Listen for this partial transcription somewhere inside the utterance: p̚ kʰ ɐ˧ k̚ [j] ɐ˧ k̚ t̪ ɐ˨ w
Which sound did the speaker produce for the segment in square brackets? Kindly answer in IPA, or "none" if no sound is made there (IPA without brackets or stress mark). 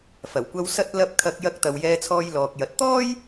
j